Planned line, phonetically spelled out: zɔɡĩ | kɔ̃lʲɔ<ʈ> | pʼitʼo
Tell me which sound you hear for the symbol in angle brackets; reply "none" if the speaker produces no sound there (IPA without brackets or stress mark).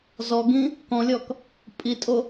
k